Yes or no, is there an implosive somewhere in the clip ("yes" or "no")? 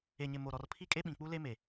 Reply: yes